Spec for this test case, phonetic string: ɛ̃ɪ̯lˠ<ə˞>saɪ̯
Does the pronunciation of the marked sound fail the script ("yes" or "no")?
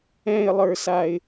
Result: no